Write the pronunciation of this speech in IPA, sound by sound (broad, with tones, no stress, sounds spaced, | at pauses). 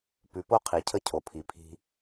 p ʉ˨ p o˦ qʰ i˨ cʰ ə˦ cʰ o˨ pʰ i˨ pʰ i̤˦